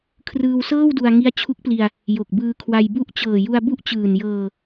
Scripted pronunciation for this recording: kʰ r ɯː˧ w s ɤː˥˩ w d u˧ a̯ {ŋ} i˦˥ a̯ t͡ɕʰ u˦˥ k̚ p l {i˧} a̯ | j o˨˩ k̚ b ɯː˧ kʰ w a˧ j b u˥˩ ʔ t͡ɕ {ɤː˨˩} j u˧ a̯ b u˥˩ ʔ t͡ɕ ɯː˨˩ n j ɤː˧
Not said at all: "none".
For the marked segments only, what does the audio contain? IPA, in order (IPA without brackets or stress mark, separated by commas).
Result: ŋ, i˧, ɤː˨˩